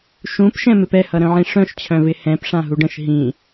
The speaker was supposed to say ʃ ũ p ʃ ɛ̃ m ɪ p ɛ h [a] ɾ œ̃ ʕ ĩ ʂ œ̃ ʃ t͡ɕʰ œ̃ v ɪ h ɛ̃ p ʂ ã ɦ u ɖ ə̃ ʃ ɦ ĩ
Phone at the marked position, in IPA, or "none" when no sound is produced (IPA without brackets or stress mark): ʌ